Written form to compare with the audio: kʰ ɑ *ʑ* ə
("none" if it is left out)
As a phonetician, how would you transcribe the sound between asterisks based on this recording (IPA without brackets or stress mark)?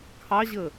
ʑ